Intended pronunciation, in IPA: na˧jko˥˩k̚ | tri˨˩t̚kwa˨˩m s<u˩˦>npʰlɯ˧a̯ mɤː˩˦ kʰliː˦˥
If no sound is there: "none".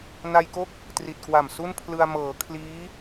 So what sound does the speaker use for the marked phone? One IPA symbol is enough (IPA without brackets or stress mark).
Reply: u˥˩